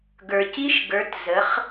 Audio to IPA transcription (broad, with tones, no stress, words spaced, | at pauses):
ɡə˞˩ci˧˥ʃɡə˞˩˧t zə˩˧χ